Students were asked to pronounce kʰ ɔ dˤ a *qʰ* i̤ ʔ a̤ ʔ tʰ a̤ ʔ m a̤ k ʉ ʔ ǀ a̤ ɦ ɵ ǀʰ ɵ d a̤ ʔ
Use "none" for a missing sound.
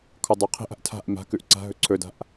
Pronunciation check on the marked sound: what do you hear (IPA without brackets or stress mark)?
qʰ